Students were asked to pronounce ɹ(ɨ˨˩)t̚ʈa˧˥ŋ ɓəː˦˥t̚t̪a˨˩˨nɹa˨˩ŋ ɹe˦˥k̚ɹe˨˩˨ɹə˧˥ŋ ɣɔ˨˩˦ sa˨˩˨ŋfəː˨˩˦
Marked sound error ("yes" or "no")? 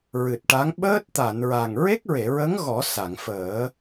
no